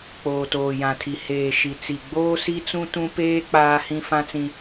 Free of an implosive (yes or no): yes